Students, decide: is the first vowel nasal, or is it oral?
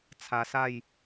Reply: oral